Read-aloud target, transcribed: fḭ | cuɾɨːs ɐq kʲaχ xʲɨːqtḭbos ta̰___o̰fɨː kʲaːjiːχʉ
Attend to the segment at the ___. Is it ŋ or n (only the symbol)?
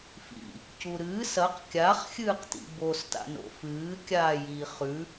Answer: n